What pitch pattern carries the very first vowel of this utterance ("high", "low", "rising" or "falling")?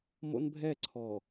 high